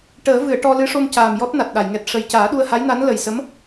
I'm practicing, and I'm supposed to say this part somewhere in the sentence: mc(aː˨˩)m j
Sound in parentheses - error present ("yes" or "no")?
no